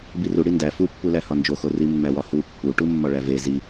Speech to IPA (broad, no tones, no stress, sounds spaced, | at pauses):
b i r u ɽ i n d æ f u pː u l æ h ɒ n d͡ʒ o x o r i mː æ w ɒ h u pː u ʈ u mː ɒ ɭ æ v e z i